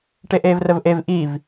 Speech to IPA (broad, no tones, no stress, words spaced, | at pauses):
ʈeʔeːvrəvʔev ʔiv